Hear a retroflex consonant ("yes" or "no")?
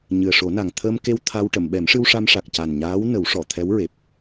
yes